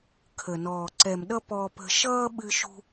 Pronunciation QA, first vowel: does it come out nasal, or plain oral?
oral